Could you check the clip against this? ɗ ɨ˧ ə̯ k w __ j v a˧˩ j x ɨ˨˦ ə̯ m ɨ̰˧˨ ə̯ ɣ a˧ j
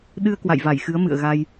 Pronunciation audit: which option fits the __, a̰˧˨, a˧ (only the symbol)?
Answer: a̰˧˨